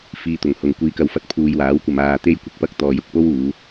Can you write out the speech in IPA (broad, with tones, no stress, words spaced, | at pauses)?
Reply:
fiː˨t̪ʊ˨˩ŋ hʊ˨ŋ kʷiː˧kɐ˧wfɐ˧t̚ pʰuː˨jwaː˨˥wkʷɐ˨m aː˨ t̪e˥jkʷɪ˧k̚pɐ˥k̚ t̪ɔː˨jʊ˧k̚ po˥wuː˨˧